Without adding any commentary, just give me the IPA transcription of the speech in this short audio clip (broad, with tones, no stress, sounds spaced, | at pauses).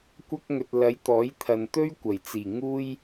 kʷ ɐ˥ k̚ ŋ ɵ˧ t̚ l ɐ˨˥ j t̪ ɔː˨˥ j t̪ʰ ɐ˨ n t̪ ɵ˥ ɥ kʷ ɐ˨˩ j t͡s iː˨˩ ŋ uː˥ j